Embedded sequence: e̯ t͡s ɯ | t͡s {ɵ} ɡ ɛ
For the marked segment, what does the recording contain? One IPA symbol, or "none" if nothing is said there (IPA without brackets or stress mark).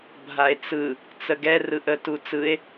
ə